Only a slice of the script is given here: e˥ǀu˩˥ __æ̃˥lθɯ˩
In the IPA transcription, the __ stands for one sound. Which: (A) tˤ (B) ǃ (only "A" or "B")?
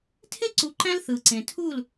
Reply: B